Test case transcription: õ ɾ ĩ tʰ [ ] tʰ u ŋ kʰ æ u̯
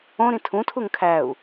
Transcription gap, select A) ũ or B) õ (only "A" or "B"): A